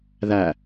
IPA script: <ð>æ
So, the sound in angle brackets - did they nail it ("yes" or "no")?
yes